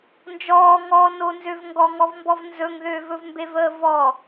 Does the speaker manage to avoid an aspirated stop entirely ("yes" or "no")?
yes